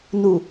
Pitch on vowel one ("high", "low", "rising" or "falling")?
low